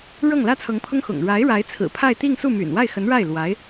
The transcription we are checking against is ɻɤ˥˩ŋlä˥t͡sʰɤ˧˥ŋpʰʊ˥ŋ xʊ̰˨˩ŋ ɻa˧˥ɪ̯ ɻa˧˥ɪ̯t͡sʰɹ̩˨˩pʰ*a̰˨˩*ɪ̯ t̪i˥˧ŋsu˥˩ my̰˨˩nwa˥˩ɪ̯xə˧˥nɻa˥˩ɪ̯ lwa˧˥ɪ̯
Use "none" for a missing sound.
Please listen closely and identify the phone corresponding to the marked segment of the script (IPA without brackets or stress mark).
a˥˧